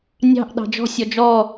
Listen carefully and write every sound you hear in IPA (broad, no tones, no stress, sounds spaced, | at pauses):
nʲ ɑ̤ ʔ ɗ ɑ̤ d͡ʒ ɔ̤ sʲ ɔ d͡ʒ ɔ